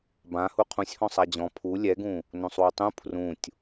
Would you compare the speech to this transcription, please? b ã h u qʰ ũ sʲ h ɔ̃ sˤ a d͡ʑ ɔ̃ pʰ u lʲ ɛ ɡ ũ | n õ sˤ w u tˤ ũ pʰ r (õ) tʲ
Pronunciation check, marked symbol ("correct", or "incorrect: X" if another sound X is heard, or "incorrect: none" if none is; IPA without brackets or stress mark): incorrect: ũ